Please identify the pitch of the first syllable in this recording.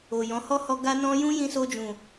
low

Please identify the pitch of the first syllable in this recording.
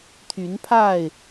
rising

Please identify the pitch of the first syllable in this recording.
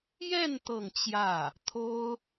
falling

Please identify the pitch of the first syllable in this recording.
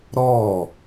falling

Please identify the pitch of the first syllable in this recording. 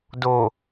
low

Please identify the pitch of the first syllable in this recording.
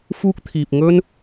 high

